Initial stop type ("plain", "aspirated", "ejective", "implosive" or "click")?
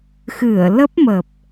plain